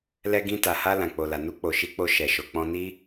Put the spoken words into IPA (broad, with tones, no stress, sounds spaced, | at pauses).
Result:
l ɛ˧ ɡ ĩ˧ t a˨ h a˧ l ã˨ k͡p o˨ l a˨ n u˧ k͡p o˨ ʃ i˨˦ k͡p o˧ ʃ ɛ˨ ʃ o˨ k͡p ɔ̃˧ n i˦